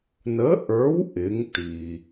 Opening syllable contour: rising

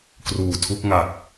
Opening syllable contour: low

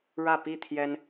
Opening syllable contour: falling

